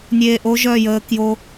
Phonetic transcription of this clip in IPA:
nʲ eː˨ ʔ o˦ ʒ œ˦˨ j əː˨˦ k j o˦

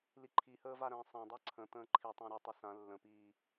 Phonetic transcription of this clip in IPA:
l i ǃʰ i h əː v a ɾ ə̃ː sˤ ã dˤ a ǀʰ ə̃ t̪ ə̃ː ǃʰ i tˤ ã ɾ ɘ tˤ ɘ s ã lː ə̃ p iː

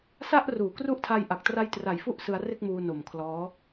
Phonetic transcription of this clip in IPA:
s a˥˩ ʔ r uː˩˦ k r u˦˥ ʔ tʰ a˧ j ʔ a˨˩ k̚ t r a˧ j t r a˨˩ j f u˥˩ ʔ s ɯ˧ a̯ r e˥˩ k̚ m uː˧ n o˨˩ m kʰ l ɔː˦˥

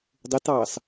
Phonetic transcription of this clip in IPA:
dˤ ɪ t ɑː s

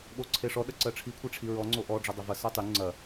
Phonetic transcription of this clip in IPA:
ɓ o ǀʰ e ʂ ɔ ɗ ɐ ǀ ɜ ʈ͡ʂʰ i kʷʰ e ʈ͡ʂʰ i ɹ ɔ ŋ͡ǀ o ʔ ɔ ɖ͡ʐ ɐ dˤ ɜ v ɐ s ə˞ tˤ y ŋ͡ǀ ɐ

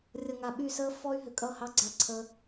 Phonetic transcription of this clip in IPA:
rʲ ʌ˨ ŋ a˨ ɓ y˦˨ s əː˦ f ɔ˦ y̯ ɦ ʏ˨ kʼ ʌ˦˨ h ɑ˦ ɡ͡ǀ a˧ ǀʰ ə˧

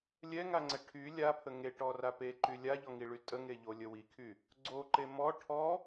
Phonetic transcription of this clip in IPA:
lʲ ɛ ŋ a ŋ͡ǀ ɛ ʈʰ y lʲ a pʰ ə ŋ e ʈ ɔ r a p e ǃ y lʲ a ʎ ɔ ŋ i ɭ y tʼ ə ŋ e ʎ o lʲ ə w i kʰ y | ɡ͡ǀ o ǃ e m ɔ ʈʰ ɔ

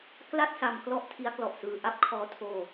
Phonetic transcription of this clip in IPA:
k l a˥˩ t̚ s a˧ m k l ɔ˥˩ ʔ tʰ i˦˥ a̯ k l ɔ˨˩ ʔ s ɯː˧ ʔ a˦˥ p̚ kʰ ɔː˦˥ tʰ oː˧

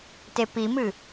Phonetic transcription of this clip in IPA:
t e p i m ɨ

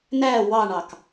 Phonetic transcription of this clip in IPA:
n æ w ɑ ɳ ɑ k

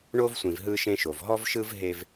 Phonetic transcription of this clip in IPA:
ɳ o˦ v sʷ ĩ˨ v ɦ ɯ˦ ʃ ẽ˦ ʃ o˨ v ɦ ɔ˦ v ʃ ɯ˦ v ɦ e˦ v

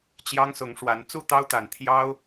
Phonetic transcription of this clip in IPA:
t͡ɕ j ɑ˦ ŋ s ʊ˨˦ ŋ ʂ w a˨˦ n t͡s u˥˨ t̪ ɑ˦ ʊ̯ t̪ a˨˩ n t̪ʰ j ɑ˦ ʊ̯

